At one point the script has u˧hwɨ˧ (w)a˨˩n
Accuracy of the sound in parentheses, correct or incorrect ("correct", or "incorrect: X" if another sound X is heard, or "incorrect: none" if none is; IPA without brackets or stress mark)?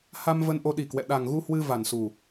incorrect: v